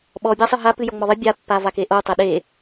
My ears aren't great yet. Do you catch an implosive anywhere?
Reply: yes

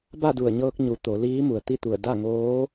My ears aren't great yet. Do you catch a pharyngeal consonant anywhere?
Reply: no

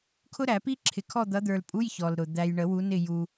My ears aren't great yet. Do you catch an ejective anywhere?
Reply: yes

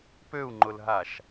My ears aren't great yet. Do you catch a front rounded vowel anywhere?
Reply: yes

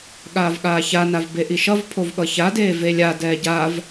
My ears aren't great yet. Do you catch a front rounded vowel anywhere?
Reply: no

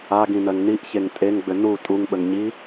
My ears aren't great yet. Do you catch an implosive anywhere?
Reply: yes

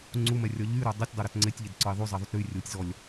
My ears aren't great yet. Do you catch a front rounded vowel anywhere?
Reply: yes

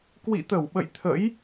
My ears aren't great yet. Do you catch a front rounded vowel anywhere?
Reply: no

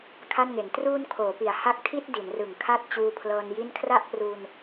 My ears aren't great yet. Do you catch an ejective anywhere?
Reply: no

